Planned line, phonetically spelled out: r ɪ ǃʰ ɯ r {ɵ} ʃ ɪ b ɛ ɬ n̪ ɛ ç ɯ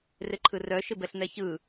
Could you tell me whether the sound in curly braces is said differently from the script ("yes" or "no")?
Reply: yes